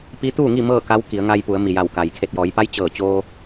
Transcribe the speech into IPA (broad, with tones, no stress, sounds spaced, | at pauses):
p i˧˥ t̪ uː˥˨ ŋ i˥˨ m ɤː˥˨ k a˧˥ w k i˩˧ ə̯ ŋ a˧ j p u˩˧ ə̯ m i˩ j a˧˩ w k a˩ j kʰ e˧˩ t̚ j ɔː˩˧ j p a˧˥ j t͡ɕ ɤː˧˩ t͡ɕ oː˧